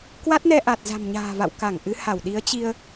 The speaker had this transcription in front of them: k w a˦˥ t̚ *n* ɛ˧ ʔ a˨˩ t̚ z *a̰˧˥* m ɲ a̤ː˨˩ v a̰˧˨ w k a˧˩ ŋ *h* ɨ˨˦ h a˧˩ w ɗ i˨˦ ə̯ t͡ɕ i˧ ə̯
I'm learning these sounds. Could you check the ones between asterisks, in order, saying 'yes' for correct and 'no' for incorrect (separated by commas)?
yes, no, no